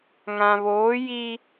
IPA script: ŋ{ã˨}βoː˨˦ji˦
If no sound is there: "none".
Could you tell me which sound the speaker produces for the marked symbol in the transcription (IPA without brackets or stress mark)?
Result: ã˨